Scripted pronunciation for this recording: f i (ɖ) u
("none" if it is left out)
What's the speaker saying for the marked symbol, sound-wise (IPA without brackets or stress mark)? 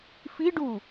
ɖ